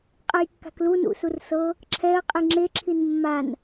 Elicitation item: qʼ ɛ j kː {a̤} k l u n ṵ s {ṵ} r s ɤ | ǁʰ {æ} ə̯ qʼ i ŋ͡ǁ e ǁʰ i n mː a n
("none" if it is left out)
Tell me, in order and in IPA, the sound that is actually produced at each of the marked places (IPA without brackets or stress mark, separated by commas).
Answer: a̤, u, ɛ